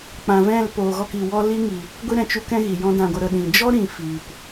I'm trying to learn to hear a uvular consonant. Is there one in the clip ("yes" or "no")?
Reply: no